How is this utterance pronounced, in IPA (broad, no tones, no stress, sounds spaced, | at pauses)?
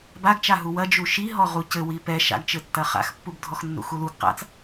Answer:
b a ɡ t͡ʃ a ɦ u w ɐ d͡ʒ u ʃ i ɦ ɔ ʁ u c ɘ w i p ɛ ʃ a̰ ɡ t͡ʃ ɘ tː ɐ χ a̰ x pː u b dʱ ɔ x nː ṵ x u l u ɡ q a̰ t͡s